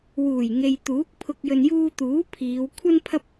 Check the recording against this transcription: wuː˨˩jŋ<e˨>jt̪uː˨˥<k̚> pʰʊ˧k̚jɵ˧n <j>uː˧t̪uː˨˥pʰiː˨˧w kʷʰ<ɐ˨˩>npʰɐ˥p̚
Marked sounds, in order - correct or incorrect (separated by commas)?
correct, correct, correct, incorrect